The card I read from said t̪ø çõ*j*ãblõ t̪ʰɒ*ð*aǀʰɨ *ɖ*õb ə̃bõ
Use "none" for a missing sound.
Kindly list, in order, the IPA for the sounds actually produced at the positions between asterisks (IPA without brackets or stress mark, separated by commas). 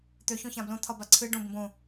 ç, b, ɖ